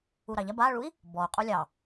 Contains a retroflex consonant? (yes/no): yes